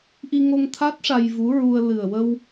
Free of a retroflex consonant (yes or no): no